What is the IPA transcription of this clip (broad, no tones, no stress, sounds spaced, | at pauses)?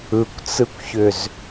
ɯ kʷ t͡s ɯ kʷ ç ʏ z